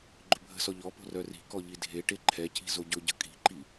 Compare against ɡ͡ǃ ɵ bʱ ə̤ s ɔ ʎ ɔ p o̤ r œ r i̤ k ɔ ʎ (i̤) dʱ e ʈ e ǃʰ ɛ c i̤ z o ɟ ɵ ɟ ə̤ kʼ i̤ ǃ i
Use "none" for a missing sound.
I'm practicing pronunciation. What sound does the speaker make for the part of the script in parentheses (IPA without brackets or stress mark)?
i